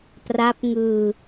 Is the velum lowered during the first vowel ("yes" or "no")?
no